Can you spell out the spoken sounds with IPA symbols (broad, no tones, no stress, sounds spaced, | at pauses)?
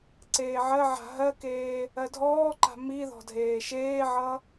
ǀ eː ʕ ɜ ʕ a̤ ɦ ɜ k eː | ɜ dʱ ɔː ǃ a̤ m i ð ɔ̤ dʱ eː ʃ eː ʕ ʌ